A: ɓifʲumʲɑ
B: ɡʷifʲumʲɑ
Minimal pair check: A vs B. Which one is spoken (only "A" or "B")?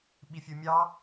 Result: A